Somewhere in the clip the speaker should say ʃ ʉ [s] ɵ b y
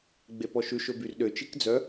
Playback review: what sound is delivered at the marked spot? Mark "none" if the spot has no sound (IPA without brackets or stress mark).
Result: ʃ